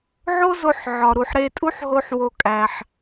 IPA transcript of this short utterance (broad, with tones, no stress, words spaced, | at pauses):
ʕo˥zo˧ħʕɒ˩ ɾu˩ħɾe˧tʼu˥ħɦo˧ħ wo˧kʼæ˩ħ